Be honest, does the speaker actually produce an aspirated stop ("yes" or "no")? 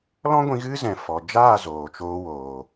no